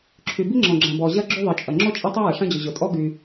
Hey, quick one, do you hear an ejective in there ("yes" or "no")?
yes